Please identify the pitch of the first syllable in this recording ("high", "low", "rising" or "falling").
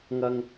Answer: high